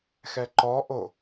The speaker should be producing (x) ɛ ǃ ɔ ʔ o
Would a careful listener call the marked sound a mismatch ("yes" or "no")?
no